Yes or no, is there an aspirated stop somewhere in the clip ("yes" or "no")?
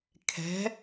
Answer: yes